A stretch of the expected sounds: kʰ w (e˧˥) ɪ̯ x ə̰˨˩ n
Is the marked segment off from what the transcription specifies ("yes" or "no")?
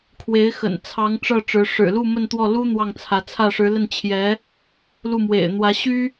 no